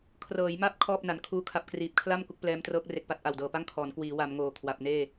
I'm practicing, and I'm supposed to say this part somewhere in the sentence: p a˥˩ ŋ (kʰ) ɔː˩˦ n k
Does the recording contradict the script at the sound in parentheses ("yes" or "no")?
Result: no